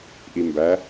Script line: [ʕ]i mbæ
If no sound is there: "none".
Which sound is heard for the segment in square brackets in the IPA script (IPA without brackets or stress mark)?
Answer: ʔ